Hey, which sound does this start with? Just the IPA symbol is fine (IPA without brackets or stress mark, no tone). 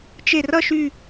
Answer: t͡ʃ